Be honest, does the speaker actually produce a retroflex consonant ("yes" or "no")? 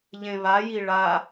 yes